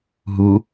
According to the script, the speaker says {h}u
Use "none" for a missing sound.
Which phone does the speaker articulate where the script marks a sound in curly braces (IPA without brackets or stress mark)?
ɦ